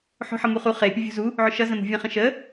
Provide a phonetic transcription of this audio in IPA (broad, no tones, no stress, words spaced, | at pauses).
ħo̤ħʌmuχu χe pʲʊvʲṳzu | ʕʊʃʌ zə̃mṳvʲə̃χə̃ ʃə